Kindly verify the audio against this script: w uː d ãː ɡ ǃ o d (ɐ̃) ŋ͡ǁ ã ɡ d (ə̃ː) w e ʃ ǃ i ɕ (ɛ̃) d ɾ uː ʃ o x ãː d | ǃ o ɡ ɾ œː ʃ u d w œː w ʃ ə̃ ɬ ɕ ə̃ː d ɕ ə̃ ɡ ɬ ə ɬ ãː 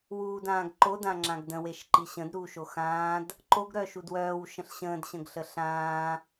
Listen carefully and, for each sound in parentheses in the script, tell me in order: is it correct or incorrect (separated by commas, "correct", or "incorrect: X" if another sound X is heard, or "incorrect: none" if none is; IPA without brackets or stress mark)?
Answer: incorrect: ã, incorrect: ə̃, incorrect: ə̃